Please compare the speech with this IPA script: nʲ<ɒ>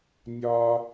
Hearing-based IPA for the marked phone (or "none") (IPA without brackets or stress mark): ɒ